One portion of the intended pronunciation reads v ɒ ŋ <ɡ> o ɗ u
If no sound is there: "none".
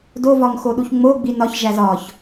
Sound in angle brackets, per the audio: x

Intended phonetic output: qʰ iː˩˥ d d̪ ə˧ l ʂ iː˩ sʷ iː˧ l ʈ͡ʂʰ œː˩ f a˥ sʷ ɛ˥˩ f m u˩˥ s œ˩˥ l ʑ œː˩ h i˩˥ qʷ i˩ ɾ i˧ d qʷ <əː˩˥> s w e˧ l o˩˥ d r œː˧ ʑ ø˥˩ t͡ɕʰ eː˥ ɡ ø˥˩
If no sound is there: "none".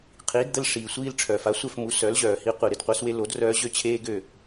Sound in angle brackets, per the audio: əː˩˥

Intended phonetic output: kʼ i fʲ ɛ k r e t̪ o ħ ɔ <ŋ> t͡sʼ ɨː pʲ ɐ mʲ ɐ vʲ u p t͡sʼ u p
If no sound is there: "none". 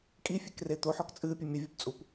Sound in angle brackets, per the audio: k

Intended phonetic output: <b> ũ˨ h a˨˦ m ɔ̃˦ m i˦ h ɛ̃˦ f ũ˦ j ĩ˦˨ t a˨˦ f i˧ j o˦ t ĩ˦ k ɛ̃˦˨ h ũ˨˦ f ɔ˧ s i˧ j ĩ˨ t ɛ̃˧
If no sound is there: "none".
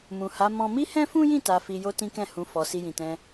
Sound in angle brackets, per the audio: m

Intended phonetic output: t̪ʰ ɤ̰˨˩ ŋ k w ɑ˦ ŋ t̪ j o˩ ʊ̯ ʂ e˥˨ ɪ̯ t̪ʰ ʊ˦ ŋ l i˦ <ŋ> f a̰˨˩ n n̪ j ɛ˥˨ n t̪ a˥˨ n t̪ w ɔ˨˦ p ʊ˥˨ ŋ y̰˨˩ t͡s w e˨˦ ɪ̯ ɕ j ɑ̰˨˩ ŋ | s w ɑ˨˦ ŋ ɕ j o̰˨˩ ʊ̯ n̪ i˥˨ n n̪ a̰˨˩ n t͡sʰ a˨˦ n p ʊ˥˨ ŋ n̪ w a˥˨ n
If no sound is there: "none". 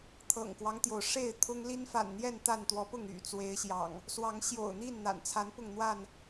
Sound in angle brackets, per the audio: n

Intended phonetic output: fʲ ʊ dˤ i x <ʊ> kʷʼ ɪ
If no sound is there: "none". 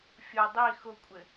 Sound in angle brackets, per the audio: ʊ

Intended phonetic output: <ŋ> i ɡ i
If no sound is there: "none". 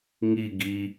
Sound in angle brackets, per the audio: ŋ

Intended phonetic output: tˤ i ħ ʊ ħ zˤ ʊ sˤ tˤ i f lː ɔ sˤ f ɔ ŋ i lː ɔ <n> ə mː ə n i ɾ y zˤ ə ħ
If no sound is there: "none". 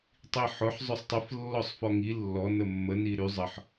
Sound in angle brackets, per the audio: n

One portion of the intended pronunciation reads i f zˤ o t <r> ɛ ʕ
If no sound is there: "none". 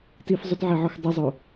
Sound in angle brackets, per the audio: ʕ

